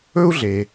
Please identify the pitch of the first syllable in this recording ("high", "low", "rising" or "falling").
high